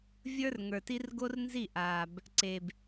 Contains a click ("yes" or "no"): yes